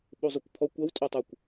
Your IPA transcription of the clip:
ɓ u zˤ u kʷ pʰ ɔ kʷ ɐ w tʼ o tˤ u kʷ

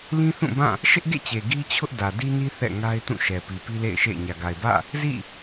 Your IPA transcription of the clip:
l ĩ˦ θ ũ˦˨ b ã˦˨ | ʃ ɪ˦ ʔ ɡ ḛ˦˨ t͡ɕ e˨ ɡ i˦ t͡ɕʰ ʊ˦ ʔ d ä˨ d i˦ n i˦ θ ɛ̰˦˨ ŋ a˦ ɪ̯ t ũ˦˨ ʃ ɛ˨ p i˨ p i˦ l ḛ˦˨ ɪ̯ ʃ ḛ˦˨ ɪ̯ ɲ ä˨ ɡ a˨ ɪ̯ b ä̰˦˨ | z ḭ˦˨

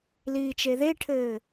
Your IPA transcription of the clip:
l iː t͡ʃ e ð e ʈʰ ɘː

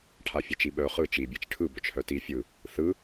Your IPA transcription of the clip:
ʈʰ a fʲ a t͡ʃ i ɓ œ χ ɯ t͡ʃ i bʲ e t͡ʃ ʈʰ ɯ b œ t͡ʃ h œ t i fʲ ɯ | θ ɯ

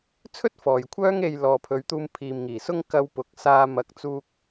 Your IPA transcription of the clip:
t͡sʰ ɵ˥ t̚ f ɔː˨ j kʷʰ œː˥ ŋ e˧ j l ɔː˨ pʰ ɵ˨˧ ɥ t̪ uː˧ m pʰ iː˨ m ŋ iː˨˩ s ʊ˥ ŋ k ɐ˧ w p ʊ˨˥ k̚ s aː˧ m ɐ˨˥ k̚ t͡s uː˧ k̚

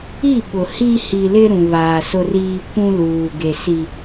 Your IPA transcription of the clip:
i˦˨ ɓ ʊ˨ h i˦ h i˨ l ɪ˦ ɾ ũ˨ β aː˨ s ʊ˦ r iː˦ kʷ ũ˦ l uː˨ ɡ e˨ s i˦

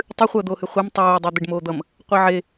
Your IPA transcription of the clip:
tˤ ɨ χʷ əː d̪ oː h ɨ χʷ e m tˤ oː dˤ ɜ d̪ e ɖ m oː d̪ ʌ m | qʷ e ʕ e

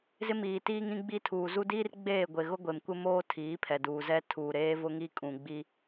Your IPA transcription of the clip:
z ɪ˦ m iː˨ t iː˦ ŋ ĩ˦ ɡ͡b i˦ tʰ uː˨ z u˦ d iː˦ r ɡ͡b eː˦˨ ɡʷ e˨ ɣ ʊ˦ ɡʷ e˨ m kʷ ɪ˦ m oː˦ tʰ iː˨˦ pʰ ɛ˨ d uː˨ z ɛ˦ tʰ uː˨ ɾ eː˦ v ʊ˦ ŋ i˦ kʼ ũ˨ ɡ͡b i˦

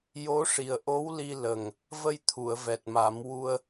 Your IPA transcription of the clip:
j o˧˥ ʂ i˨˩ ə̯ ʔ o˧˥ w l i˧ l ə˨˩ ŋ | v ə˧ j t̪ʰ u˨˩˨ ə̯ v ɛ˨˩ t̚ m a˨˩˦ m w u˧ ə̯

